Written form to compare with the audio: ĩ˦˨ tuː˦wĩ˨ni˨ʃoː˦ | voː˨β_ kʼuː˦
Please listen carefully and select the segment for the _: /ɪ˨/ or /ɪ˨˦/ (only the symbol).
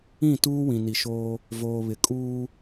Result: ɪ˨